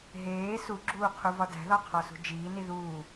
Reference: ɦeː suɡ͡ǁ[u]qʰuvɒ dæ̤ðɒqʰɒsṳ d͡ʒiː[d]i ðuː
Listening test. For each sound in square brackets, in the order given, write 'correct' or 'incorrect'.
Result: incorrect: uː, incorrect: n

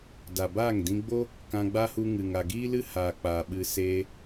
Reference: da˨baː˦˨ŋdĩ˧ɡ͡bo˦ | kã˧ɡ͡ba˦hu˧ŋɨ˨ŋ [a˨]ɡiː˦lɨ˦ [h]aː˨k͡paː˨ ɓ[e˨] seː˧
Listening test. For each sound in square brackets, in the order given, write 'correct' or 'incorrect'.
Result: correct, correct, incorrect: ɨ˨

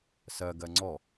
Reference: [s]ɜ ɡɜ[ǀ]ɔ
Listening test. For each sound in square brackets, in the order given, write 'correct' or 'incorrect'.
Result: correct, incorrect: ŋ͡ǀ

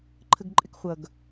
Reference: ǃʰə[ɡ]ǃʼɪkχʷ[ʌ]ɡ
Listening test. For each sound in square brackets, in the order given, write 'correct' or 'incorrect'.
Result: correct, correct

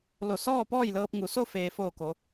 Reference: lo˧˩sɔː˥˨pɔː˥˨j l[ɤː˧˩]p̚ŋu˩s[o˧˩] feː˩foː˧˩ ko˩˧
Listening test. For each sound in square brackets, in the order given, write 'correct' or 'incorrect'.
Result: incorrect: ɤː˧, incorrect: o˥˨

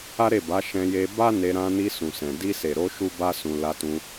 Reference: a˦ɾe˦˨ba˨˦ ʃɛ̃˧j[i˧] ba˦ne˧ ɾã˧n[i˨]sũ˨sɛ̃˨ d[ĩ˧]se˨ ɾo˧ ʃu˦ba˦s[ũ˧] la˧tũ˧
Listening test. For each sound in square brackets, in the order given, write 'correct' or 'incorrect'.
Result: incorrect: e˧, incorrect: i˧, incorrect: i˧, correct

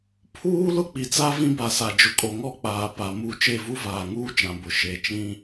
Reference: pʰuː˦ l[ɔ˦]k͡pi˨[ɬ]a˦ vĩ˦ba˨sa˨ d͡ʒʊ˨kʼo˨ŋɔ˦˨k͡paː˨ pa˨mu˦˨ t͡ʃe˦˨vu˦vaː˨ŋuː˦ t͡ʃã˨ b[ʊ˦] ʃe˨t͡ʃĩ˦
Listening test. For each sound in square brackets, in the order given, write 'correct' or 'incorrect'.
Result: incorrect: ʊ˦, incorrect: t͡s, incorrect: ʊ˨

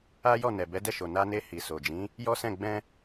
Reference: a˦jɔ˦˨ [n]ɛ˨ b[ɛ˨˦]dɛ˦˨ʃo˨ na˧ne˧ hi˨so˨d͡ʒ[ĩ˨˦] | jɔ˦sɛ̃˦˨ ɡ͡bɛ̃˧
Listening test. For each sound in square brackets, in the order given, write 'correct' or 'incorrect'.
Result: correct, correct, correct

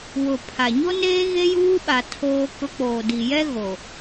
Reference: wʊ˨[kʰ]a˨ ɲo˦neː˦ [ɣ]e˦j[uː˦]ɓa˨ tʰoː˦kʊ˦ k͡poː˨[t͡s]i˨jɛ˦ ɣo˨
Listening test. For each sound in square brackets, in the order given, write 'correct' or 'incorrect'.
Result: incorrect: pʰ, correct, correct, incorrect: d

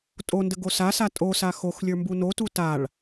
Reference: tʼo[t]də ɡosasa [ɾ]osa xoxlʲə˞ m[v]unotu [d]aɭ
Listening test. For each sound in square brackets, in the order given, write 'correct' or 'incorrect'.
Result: incorrect: n, incorrect: tʼ, incorrect: b, incorrect: t

